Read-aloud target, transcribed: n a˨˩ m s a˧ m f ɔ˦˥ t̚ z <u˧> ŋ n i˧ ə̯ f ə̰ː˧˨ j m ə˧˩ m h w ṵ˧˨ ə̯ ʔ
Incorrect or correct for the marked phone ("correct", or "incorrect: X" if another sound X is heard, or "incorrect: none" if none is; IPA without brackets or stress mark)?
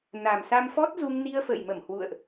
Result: correct